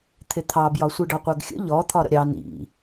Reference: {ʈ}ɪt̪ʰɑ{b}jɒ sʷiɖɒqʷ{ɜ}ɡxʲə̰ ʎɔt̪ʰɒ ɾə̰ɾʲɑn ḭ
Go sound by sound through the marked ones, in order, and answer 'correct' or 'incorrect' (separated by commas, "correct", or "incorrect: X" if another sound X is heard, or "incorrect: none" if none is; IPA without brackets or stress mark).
incorrect: t̪ʰ, correct, correct